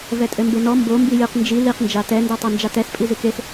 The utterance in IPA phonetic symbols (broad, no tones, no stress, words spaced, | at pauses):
vɛtʼɘmbenɔ mbo mbijɨq nd͡ʒi liq nd͡ʒatɛ ndɛtˤand͡ʒatɛs pʼizɨkes